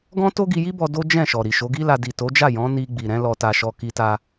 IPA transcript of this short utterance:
ɡ ɔ̃˦ t o˦ ɡ i˧ j i˦ b ɔ˧ d o˦ d͡ʒ ɛ̃˦˨ ʃ ɔ˨ ɾ i˨ ʃ o˨˦ ɡ i˦ l a˧ d i˨ t o˨˦ d͡ʒ a˦˨ j ɔ̃˨˦ n i˧ ɡ͡b i˨ ɾ ɛ̃˨˦ l ɔ˧ t a˧ ʃ ɔ˧ k i˧ t a˧

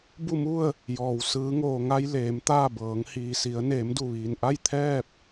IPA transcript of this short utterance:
b u˥˨ m u˥˨ ə̯ | j ɔː˩ w s ɯː˩˧ ŋ oː˩ ŋ a˧ j l eː˩˧ m t̪ aː˥˨ b ɤː˩˧ ŋ h iː˩ s i˩˧ ə̯ n eː˩˧ m d u˧˩ ʋ iː˩ n ʔ a˥˨ j t̪ʰ ɛː˥˨ p̚

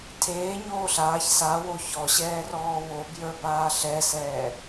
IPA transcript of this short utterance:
tʰ eː ɲ oː ɬ aː ç s a w o ç ɔ ɕ ɛː r ɔː w o b j ə˞ b aː ɬ ɛ s ɛː

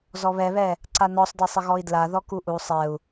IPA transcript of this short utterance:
z ɔ β ɛ β ɛ | ǀ a n ɔ sˤ d ɛ sˤ ɘ ɣ ɔ i̯ d l a ð ɔ k u ʔ u sˤ ɛ u̯

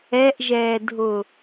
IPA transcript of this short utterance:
ɛ ʔ ʒ ɛː dʱ ʊ

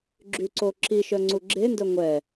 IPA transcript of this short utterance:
ɡ͡ǁ y ǀ o ǁ i ʃ œ ŋ͡ǀ u ɡ͡ǁ e n d œ ŋʷ ɛ

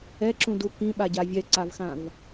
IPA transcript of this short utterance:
ɛ ǁ ũ d u k ĩ ɓ a ɟ a vʲ ɛ ǀ a v x ã v

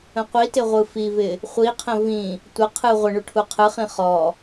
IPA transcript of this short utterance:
ə̃ qʷ i t ɪ ʁʷ ɯ f i v ɪ | χʷ i qʰ ə̃ v ĩ | tʷ ə qʰ ɯ ʁʷ ə ɳ u ʈʰ u qʰ ɯ χ ĩ χ ɔ

